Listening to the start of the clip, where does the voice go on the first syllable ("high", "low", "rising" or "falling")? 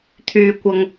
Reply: high